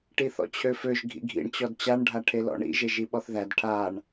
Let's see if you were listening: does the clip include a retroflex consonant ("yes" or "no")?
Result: yes